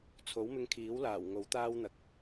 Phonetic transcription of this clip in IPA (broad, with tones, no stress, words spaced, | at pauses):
t͡sʰo˨˥wmɪ˧ŋkʰiː˨˥wlaː˨˩w ŋo˨˥wt̪aː˥wn̪ɐ˨k̚